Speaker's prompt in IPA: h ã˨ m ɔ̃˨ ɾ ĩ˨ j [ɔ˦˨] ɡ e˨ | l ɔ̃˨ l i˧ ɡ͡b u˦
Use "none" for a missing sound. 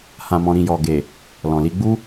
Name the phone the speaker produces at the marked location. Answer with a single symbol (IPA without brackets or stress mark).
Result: ɔ˨